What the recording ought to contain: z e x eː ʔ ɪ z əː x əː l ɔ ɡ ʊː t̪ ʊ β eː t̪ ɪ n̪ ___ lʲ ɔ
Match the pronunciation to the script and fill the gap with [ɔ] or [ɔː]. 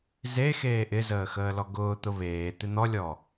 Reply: ɔ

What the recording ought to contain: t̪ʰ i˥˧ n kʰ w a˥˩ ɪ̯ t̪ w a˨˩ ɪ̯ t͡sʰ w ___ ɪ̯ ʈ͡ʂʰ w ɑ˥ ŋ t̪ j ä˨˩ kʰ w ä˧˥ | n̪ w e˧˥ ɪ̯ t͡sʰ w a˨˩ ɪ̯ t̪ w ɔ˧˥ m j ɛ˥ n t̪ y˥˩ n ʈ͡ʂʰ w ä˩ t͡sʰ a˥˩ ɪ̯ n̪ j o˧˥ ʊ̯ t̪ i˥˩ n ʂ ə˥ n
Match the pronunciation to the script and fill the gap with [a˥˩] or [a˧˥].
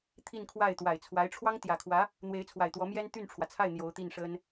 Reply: a˧˥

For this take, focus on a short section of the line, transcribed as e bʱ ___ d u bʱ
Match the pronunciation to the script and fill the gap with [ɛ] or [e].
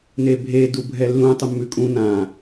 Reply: e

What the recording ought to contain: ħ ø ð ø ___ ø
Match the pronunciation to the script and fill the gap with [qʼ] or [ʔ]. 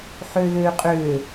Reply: qʼ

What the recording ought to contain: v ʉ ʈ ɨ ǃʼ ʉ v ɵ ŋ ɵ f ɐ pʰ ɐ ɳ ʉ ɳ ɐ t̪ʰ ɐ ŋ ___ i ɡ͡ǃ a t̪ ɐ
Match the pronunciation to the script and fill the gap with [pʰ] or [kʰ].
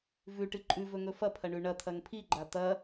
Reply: pʰ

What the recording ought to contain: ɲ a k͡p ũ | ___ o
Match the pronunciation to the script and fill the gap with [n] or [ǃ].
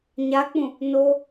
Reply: n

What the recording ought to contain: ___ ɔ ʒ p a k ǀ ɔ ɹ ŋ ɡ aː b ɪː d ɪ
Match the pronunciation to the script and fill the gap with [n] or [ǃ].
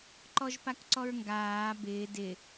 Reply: ǃ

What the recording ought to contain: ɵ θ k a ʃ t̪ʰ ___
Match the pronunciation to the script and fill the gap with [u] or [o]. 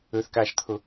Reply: o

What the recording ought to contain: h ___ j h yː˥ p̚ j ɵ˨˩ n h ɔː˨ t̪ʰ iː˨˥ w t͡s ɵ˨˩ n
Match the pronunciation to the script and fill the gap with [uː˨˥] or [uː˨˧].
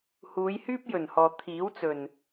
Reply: uː˨˧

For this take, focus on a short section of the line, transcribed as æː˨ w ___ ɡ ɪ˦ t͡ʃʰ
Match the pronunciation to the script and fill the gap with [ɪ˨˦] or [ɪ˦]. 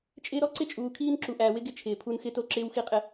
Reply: ɪ˦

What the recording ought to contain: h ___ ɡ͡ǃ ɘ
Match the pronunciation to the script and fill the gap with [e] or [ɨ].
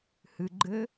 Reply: ɨ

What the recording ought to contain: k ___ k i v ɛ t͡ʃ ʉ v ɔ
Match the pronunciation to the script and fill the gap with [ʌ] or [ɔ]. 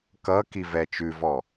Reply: ʌ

